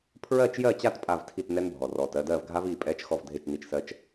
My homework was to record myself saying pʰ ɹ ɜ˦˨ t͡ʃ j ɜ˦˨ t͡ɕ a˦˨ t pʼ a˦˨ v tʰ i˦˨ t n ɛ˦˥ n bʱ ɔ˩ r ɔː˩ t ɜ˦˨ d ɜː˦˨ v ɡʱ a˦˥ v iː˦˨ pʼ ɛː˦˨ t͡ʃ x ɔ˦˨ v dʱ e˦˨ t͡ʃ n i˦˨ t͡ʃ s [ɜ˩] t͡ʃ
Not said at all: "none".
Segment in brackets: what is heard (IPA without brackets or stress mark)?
ɜ˦˥